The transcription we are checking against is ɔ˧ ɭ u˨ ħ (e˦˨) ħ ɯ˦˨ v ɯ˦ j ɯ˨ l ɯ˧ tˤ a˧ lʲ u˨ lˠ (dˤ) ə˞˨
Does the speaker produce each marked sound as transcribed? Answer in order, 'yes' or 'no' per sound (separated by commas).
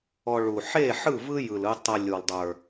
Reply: yes, yes